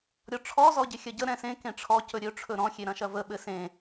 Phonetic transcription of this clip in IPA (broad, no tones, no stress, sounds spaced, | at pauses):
ɾʲ ɔ ʈ͡ʂʰ ɔ z ɔ ɟ ɪ xʲ ɐ ɟ ə ɾ ɛ̃ s ẽ k ẽ ʈ͡ʂʰ ɔ c ɵ ɾʲ ɵ ʈ͡ʂʰ ɵ ɾ ɔ̃ xʲ e ɾ ɐ̃ ʃ ɐ v ə ɓ ɘ s ẽ